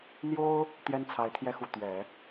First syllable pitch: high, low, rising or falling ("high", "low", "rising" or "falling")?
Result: high